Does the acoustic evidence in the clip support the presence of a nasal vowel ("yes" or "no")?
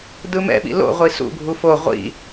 no